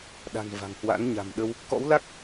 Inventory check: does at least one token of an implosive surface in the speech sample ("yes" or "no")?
yes